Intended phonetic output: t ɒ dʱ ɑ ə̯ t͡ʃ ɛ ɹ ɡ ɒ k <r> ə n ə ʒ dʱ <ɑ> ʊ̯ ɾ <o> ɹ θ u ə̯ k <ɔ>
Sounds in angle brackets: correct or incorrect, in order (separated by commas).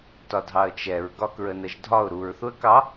incorrect, incorrect, incorrect, incorrect